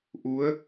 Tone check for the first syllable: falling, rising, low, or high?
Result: rising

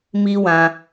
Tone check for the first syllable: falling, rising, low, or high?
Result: high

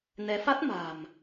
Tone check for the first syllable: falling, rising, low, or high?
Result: rising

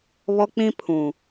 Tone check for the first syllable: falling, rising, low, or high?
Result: high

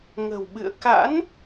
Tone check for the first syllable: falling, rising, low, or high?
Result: low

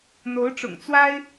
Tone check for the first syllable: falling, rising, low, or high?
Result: rising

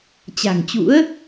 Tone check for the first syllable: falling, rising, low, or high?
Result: low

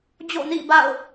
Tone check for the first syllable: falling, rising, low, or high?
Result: falling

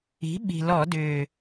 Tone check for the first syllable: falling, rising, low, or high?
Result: rising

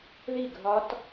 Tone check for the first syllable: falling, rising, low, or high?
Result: falling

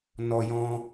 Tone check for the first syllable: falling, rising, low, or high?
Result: high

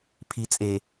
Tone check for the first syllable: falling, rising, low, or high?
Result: low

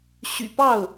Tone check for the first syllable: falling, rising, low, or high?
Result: low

